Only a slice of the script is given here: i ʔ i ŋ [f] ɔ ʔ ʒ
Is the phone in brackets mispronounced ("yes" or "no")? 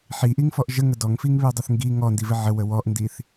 no